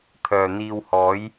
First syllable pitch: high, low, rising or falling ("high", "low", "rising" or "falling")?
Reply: low